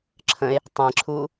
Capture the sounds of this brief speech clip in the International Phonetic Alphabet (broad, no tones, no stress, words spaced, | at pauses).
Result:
ǁʰə̃e̯ | tˤẽǁʰuː